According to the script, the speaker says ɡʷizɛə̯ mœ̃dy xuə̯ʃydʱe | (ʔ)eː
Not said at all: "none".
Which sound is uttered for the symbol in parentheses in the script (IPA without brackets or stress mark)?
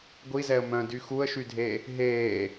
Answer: ɦ